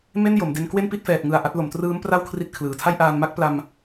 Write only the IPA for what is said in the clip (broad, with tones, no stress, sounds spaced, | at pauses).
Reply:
m e˥˩ n j o˩˦ m d e˦˥ n k w e˥˩ n p i˥˩ t̚ f ɛː˨˩ t̚ ŋ ɯ˨˩ a̯ ʔ a˦˥ t̚ l o˩˦ m t r ɯː˦˥ m p r a˥˩ w kʰ r i˥˩ t̚ kʰ l ɯː˨˩ tʰ a˥˩ j ʔ aː˧ n m a˥˩ k̚ p l a˧ m